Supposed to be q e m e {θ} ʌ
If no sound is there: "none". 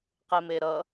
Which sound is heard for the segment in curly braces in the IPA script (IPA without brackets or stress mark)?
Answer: ɾ